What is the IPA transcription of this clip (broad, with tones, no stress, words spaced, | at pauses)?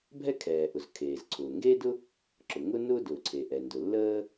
bʱɛ˥kʰɛː˩ʔʊ˩z kʰeː˩zǀʰʊː˩ ŋɡe˥dʊ˥ | ǁʊ˩ ŋʊ˥nʊː˥ dʊː˩ǀʰe˩ʔɛ˩ ndʊ˩lːəː˥